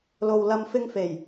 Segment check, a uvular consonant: absent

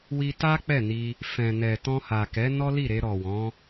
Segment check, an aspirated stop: absent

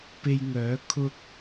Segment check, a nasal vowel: absent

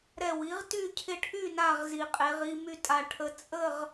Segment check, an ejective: present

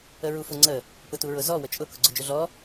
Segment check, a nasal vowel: absent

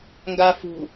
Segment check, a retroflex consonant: absent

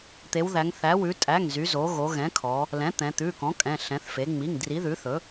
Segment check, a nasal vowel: present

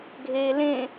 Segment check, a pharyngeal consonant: absent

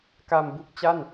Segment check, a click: absent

